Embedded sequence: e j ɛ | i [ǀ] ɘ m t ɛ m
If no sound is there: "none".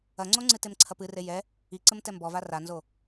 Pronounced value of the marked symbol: ǀ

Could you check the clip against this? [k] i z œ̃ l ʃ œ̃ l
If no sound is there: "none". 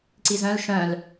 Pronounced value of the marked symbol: ǀ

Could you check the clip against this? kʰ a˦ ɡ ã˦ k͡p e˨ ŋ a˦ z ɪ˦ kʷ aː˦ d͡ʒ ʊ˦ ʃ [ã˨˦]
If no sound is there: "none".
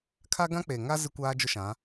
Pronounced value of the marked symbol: ã˨˦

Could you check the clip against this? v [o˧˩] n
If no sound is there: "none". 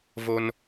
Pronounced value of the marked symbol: o˧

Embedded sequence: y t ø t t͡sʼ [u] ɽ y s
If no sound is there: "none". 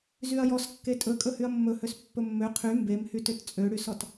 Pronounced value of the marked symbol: ø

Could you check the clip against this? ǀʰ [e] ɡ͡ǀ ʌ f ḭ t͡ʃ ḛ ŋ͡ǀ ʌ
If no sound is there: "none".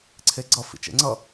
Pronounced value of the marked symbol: e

